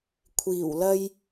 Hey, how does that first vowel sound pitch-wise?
low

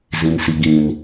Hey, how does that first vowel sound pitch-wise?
low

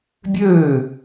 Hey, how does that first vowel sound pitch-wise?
falling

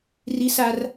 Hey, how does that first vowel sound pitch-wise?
high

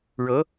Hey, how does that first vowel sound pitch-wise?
rising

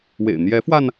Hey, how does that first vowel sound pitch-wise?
low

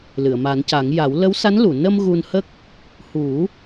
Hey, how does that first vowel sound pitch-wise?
low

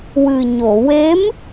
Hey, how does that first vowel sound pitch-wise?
low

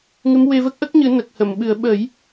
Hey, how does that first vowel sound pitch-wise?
rising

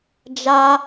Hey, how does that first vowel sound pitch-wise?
high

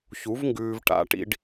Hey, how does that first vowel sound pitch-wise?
rising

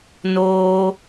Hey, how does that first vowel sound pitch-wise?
high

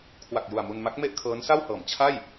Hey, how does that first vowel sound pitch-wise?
low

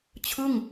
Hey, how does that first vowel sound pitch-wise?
falling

